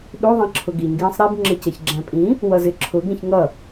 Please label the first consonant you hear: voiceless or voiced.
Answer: voiced